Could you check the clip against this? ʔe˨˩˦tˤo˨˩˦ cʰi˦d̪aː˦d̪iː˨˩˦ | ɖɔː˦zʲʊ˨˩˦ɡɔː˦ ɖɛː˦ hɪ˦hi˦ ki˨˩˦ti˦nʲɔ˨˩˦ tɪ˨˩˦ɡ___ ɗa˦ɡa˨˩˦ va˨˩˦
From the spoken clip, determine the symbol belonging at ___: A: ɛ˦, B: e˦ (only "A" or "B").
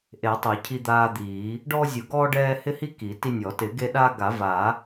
B